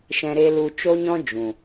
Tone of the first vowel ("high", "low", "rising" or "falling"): low